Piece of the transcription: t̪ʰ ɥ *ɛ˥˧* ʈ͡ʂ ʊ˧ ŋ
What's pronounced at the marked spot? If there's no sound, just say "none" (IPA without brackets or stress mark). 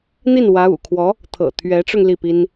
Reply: ɛ˧˥